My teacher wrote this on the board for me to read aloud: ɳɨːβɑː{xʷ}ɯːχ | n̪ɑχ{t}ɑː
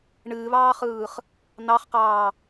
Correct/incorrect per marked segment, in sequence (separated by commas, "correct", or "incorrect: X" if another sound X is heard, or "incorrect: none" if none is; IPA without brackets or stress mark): incorrect: χ, incorrect: q